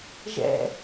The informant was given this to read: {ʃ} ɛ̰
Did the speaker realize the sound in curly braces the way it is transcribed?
no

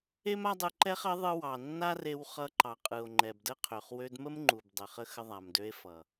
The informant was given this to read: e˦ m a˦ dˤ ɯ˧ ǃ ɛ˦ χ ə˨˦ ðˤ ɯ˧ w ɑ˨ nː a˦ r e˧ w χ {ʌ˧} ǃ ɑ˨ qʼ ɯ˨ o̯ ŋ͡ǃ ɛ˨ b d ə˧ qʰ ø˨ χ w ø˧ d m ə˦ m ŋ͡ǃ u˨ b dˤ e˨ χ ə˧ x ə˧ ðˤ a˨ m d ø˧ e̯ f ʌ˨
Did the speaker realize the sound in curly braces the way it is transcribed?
yes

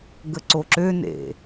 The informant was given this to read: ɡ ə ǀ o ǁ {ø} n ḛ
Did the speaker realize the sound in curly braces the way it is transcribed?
yes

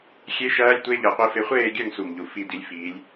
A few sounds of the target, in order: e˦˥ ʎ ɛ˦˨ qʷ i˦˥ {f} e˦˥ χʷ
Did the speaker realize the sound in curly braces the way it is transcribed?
yes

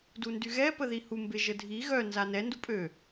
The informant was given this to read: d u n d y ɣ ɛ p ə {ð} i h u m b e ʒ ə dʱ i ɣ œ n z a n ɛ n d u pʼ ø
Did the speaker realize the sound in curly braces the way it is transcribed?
yes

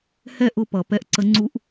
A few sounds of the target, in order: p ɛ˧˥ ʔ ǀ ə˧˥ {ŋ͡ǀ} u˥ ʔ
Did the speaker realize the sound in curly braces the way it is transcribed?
yes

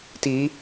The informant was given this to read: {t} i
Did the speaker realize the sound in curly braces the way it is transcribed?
yes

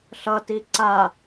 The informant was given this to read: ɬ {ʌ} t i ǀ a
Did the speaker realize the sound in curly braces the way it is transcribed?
yes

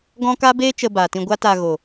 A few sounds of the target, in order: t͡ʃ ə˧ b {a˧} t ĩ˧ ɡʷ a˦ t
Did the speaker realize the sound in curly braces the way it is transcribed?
no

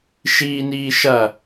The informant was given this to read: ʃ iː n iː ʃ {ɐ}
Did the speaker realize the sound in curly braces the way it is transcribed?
yes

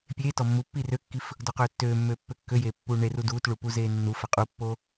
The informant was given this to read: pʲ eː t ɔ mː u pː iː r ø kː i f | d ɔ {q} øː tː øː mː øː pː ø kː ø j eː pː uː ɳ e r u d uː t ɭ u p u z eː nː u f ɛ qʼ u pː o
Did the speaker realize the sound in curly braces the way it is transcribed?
yes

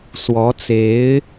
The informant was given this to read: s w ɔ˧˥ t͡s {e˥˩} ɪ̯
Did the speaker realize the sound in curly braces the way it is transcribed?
no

